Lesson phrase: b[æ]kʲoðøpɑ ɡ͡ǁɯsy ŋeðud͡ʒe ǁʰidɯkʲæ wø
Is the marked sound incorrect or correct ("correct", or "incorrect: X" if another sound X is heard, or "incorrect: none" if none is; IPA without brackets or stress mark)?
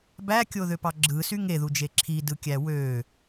correct